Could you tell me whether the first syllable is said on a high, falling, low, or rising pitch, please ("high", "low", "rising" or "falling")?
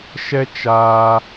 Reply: high